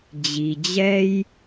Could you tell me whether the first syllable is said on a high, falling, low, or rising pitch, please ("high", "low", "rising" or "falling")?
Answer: low